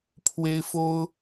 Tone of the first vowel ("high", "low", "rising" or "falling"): high